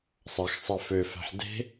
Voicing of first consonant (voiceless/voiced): voiceless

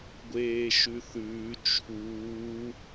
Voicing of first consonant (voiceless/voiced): voiced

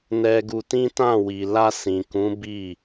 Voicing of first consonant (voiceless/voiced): voiced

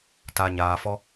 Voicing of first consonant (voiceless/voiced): voiceless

